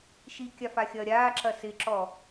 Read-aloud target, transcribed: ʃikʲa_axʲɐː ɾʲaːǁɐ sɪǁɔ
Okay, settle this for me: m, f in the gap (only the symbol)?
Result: f